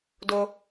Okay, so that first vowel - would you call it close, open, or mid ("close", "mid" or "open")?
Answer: mid